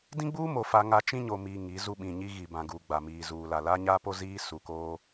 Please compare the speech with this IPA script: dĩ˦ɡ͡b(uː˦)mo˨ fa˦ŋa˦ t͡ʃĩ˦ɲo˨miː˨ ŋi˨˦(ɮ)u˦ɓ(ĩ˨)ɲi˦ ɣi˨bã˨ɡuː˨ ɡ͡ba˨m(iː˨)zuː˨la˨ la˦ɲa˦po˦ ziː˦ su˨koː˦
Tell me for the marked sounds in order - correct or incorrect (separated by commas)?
correct, incorrect, correct, correct